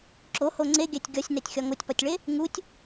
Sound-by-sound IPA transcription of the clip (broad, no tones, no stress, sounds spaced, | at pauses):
ǁ o h o ŋ͡ǀ e ɡʲ æ tʲ ɡʲ ɒ sʲ n æ tʲ xʲ ɒ ŋ o tʲ p ɒ tʲ ɭ e | ŋ u tʲ